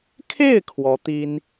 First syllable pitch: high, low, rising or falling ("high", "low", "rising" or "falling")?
falling